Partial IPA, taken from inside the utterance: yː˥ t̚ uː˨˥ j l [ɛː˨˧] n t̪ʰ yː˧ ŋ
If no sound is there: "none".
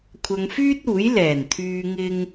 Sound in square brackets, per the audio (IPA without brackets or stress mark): ɛː˨˩